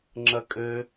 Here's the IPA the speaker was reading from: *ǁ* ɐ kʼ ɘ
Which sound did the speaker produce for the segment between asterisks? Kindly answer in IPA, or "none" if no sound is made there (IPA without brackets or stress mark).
ŋ͡ǁ